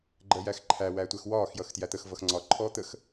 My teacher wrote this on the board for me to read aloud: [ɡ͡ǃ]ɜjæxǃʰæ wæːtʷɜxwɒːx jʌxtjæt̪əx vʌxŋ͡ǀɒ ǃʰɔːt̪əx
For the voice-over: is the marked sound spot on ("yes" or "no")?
yes